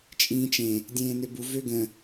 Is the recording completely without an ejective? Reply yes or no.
no